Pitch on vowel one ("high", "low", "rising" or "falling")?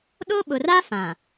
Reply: high